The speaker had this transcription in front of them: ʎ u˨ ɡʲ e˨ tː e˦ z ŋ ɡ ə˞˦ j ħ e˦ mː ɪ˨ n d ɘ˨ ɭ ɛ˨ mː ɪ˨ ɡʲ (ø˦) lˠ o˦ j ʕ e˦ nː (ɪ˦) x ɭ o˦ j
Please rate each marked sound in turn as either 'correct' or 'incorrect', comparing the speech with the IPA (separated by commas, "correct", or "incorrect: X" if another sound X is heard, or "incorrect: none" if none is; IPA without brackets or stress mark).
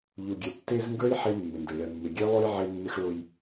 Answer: incorrect: e˦, correct